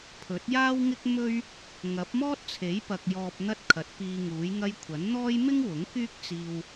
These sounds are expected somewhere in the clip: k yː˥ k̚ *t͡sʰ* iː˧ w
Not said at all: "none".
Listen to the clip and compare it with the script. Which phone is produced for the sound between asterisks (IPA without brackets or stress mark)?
t͡s